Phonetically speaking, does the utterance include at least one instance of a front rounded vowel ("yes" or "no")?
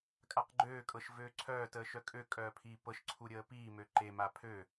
yes